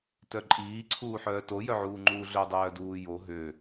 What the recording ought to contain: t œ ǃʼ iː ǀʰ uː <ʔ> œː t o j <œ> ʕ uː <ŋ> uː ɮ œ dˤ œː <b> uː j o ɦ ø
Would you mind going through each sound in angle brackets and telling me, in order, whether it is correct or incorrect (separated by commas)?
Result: incorrect, correct, incorrect, incorrect